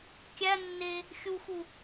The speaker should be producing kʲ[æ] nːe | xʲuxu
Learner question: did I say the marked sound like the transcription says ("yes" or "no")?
yes